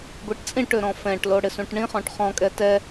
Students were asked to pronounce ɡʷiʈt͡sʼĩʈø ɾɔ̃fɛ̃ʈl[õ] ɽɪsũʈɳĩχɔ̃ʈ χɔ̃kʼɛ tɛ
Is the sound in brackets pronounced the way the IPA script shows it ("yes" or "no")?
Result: no